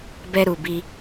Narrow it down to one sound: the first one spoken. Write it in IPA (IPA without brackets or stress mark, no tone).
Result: b